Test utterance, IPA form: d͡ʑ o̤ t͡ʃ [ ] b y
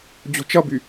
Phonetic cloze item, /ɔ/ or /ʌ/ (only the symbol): ʌ